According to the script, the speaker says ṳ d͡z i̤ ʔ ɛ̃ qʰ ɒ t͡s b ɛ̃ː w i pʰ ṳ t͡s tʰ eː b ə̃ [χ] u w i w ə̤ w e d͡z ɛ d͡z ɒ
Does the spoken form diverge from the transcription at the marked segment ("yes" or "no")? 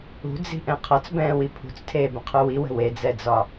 yes